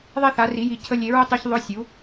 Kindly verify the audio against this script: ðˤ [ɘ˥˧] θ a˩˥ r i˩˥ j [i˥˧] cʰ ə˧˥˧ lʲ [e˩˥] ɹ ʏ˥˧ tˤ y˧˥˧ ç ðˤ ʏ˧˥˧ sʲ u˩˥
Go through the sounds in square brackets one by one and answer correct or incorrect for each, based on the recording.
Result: incorrect: e˥˧, incorrect: i˩˥, correct

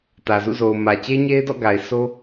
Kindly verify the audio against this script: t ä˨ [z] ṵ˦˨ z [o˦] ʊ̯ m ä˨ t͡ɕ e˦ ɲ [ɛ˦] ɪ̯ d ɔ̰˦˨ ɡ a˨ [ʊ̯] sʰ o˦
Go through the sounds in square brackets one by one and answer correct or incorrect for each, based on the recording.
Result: correct, incorrect: o˨, incorrect: e˦, incorrect: ɪ̯

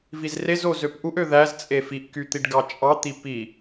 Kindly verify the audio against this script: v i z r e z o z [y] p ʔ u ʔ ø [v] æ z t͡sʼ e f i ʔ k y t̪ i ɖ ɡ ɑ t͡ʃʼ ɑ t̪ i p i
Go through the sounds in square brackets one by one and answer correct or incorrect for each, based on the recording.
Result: incorrect: ø, incorrect: ð

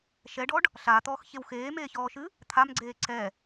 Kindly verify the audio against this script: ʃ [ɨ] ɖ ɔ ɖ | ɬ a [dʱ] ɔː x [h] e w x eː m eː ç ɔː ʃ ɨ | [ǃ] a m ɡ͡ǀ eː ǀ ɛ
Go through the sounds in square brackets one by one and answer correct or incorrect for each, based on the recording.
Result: incorrect: ɛ, incorrect: t̪, incorrect: ç, incorrect: t̪ʰ

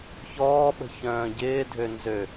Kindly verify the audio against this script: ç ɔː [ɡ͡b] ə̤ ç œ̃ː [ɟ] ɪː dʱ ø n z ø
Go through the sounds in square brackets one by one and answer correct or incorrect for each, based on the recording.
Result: incorrect: ɓ, correct

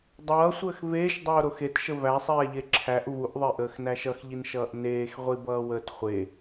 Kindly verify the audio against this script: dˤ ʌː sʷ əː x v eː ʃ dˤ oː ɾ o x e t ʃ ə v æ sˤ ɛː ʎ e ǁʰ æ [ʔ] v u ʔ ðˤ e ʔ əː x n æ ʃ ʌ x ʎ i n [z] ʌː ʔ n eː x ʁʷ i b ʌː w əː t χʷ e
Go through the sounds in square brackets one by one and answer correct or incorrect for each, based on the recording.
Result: correct, incorrect: ʃ

